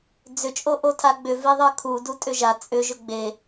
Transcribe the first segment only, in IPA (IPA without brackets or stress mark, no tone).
d͡z